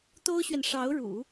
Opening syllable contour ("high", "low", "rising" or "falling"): high